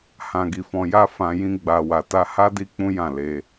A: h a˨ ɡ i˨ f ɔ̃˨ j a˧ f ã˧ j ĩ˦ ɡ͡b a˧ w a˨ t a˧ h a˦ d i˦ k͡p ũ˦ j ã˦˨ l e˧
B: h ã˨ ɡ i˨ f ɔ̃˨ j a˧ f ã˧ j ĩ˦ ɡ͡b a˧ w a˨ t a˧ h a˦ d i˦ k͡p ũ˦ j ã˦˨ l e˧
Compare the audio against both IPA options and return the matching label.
B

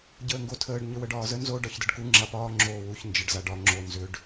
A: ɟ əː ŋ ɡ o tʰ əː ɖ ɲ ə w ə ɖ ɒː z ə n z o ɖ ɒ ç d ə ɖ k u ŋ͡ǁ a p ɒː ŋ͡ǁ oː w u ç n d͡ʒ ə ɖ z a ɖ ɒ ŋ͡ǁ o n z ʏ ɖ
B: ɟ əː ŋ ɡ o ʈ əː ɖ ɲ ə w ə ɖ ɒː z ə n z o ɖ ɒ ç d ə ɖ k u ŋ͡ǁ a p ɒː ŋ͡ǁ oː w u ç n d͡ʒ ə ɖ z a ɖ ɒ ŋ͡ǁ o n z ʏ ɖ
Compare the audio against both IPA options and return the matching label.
A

